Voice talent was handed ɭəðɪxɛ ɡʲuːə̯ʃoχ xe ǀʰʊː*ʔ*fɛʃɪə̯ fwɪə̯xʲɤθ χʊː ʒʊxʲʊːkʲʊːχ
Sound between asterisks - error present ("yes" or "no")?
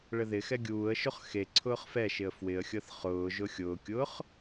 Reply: yes